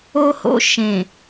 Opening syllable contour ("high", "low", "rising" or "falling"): high